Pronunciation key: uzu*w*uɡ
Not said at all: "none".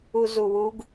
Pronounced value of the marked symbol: w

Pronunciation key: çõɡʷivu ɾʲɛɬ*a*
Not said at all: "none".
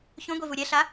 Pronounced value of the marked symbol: a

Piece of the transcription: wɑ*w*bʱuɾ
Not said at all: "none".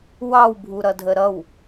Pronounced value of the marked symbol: w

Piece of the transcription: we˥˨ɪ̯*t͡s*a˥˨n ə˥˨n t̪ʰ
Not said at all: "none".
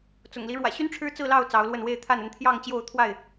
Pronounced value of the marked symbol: t̪ʰ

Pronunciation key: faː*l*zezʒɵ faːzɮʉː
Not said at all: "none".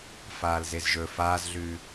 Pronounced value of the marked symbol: l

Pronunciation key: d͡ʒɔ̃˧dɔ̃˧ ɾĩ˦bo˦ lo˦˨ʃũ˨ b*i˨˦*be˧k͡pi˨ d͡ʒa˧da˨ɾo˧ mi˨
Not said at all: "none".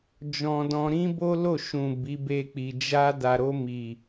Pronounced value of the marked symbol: i˨˦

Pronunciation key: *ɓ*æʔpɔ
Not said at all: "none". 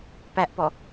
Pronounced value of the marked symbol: p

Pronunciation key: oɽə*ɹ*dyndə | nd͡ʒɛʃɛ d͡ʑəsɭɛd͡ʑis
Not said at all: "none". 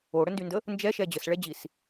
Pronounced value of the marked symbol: n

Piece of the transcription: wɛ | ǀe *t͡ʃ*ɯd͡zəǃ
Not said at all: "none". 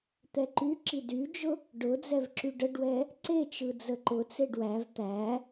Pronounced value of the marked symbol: t͡ʃ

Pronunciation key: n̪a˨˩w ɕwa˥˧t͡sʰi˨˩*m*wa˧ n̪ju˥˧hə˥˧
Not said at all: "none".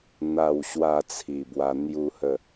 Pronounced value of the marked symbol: b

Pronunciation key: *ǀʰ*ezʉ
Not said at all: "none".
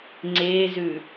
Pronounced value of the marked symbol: ŋ͡ǀ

